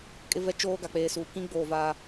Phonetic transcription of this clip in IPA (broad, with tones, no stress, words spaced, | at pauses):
kʼɪ˦vɛ˦t͡ʃoː˦ ɡa˨k͡peː˨suː˨ kĩ˦ɡ͡boː˨ vaː˦